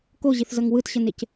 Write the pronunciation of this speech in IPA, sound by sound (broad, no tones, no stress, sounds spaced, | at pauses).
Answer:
k o ʑ i θ z ʌ ŋ w ɯ t ɕ ʌ n e c